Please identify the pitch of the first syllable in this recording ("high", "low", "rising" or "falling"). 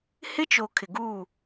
high